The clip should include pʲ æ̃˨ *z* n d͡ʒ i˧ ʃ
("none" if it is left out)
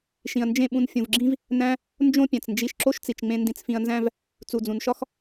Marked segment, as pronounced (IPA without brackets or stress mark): t͡s